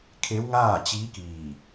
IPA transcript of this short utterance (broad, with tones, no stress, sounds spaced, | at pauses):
kʰ e˧˥ w ŋ aː˥˨ t͡ɕ iː˧˥ k iː˧˩